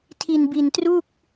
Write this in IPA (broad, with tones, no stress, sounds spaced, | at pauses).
tʰ i˧ n b i˧ n t r u˥˩ k̚